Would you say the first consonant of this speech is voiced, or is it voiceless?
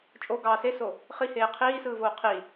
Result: voiceless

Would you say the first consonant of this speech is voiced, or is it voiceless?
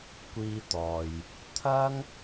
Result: voiceless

